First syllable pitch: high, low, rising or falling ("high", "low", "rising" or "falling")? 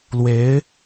rising